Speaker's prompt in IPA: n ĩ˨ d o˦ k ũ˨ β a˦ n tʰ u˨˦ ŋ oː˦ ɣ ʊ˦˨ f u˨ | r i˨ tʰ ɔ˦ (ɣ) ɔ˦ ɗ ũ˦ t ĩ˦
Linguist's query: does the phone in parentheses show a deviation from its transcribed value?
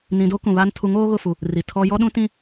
yes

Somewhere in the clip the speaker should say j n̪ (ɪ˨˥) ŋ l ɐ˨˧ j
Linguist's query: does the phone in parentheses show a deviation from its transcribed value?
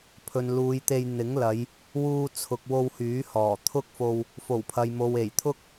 no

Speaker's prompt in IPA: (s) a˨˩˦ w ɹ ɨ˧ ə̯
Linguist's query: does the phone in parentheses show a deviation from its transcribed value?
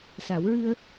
no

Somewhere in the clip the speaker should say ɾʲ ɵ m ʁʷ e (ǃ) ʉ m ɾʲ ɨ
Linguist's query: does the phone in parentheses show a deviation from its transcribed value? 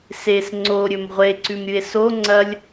yes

